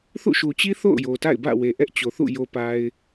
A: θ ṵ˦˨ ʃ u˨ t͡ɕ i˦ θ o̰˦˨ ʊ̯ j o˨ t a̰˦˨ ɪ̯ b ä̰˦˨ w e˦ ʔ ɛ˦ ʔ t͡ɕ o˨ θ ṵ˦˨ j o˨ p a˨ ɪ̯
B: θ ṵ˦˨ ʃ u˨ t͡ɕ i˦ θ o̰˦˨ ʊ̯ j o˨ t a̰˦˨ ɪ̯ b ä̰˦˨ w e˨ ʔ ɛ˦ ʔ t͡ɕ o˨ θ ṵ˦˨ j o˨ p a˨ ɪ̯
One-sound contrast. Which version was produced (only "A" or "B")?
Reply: B